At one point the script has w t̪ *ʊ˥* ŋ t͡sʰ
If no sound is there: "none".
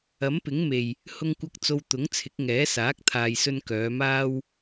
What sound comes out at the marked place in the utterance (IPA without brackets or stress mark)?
ʊ˨˥